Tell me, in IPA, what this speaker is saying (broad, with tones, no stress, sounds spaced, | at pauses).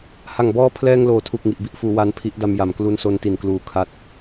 h a˨˩ ŋ b ɔː˦˥ pʰ l ɛː˧ ŋ l oː˩˦ tʰ u˨˩ k̚ ŋ i˨˩ ʔ b i˥˩ ʔ f uː˩˦ w a˦˥ n pʰ i˦˥ ʔ d a˧ m j a˨˩ m k l u˦˥ n s o˦˥ n t i˨˩ n k l uː˨˩ kʰ a˦˥ t̚